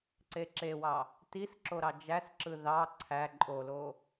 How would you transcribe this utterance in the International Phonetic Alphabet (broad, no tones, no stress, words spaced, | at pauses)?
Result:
ǀeǁewɑ | tisǁo ɾɑd͡ʒæsǁɯ ðɑ ǀʰæ ǃʼolo